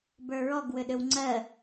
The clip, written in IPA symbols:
b ə˞ ɹ ɔ ɡ w ʏ ɗ ʏ w ŋ͡ǀ ɜ

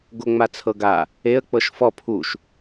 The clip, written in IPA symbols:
ɡ o ŋ͡m a t͡sʰ ɤ ɡ a | e ə̯ k͡p ɤ ʃ f ɔ pʰ u ʃ

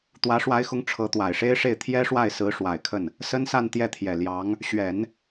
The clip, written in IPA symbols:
t̪ w ä˧˥ ʂ w a˧˥ ɪ̯ x ʊ˧˥ ŋ ʈ͡ʂʰ ɤ˧˥ t̪ w a˨˩ ɪ̯ ʂ e˥ ɪ̯ ʂ e˥˩ ɪ̯ t̪ʰ j ɛ˥ ʂ w a˥˩ ɪ̯ s ɹ̩˧˥ ʂ w a˨˩ ɪ̯ kʰ ə˥˩ n | s ə˥ n s a˥˧ n t̪ j ɛ˥˩ t̪ʰ j ɛ˨˩ l j ɑ˧˥ ŋ | ɕ ɥ ɛ˨˩˦ n

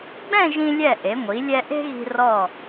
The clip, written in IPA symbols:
ɡ͡b ɛ̃˥˧ ʒ ĩ˧ lʲ ɛ˧˩ ʔ e˩˧ ŋʷ i˩˧ lʲ ɛ˧ ʔ e̤˥ ɣ i̤˧ r ɔ˧˩

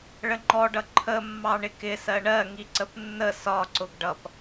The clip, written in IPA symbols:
ɭ ə ŋ͡ǃ ɔ ɖ ʌ ǃʰ ə mː ɑ ɳ ɪ k ɪ s ɜ ɳ ɜ ŋ i ǀ ə p nː ə s ɒ ǀ ʊ ɡ ɖ ʌ p

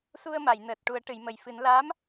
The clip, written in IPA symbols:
s u˧ ə̯ m a˨˩˨ j n əː˨˩ t̚ ʈ u˨˩˦ ə̯ ʈ ɨ˨˩˨ j m ə˨˩ j f ɨ˨˩˦ n l aː˧˥ m

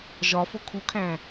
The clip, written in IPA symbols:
ʒ ɒ f o kʰ u kʰ æ̃

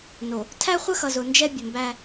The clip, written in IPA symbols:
n o˨ | tʰ æ˦ χʷ ə˦ x ʌ˨ z ʊ˨ n d͡ʒ ɛ˦ bʲ ə˨ m b æ˦

